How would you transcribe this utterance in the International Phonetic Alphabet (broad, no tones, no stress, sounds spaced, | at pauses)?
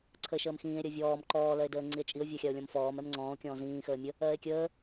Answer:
ǀʰ ə e̯ ʃ əː m x ĩː e̯ ɾʲ ɜ vʲ ɔː m ǃ ɔː l ɜ e̯ d əː ŋ͡ǀ i e̯ t͡ʃʼ i o̯ vʲ ɜ xʲ a o̯ lʲ ɔ̃ m f ɔː m ɛ m ŋ͡ǀ ɔ̃ː o̯ kʲ ɔ̃ː z ĩː x əː mʲ ə | ɜː e̯ kʲ əː